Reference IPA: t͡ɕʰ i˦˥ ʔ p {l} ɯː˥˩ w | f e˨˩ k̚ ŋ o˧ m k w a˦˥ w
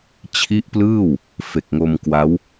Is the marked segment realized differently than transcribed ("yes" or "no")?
no